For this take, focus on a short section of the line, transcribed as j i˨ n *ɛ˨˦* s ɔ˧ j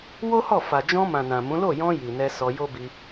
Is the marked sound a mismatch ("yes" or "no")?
yes